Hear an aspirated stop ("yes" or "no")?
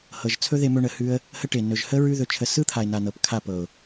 yes